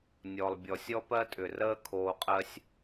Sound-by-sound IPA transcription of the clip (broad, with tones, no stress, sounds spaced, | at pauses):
nʲ ɔ˩ lˠ bʲ ɔ˩ sʲ ɔ˥ p ɜ˥ tʼ ʏ˩ r əː˥ kʰ oː˧ qʼ ɜ˥ sʲ